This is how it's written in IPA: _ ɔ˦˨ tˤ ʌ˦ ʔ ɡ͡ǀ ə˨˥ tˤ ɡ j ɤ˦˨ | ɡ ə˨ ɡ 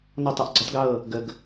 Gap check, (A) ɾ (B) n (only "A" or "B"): B